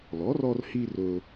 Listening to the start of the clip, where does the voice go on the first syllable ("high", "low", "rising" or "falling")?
rising